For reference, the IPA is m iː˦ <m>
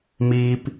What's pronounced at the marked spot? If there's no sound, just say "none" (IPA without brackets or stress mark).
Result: p